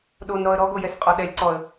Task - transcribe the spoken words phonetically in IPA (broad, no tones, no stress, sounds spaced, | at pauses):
ɗ o n ɾ ɔ ə̯ ɾ ɔ ɡ o j ɛ s qʼ ɔ ɗ ɛ lʲ ǀ ɔ ə̯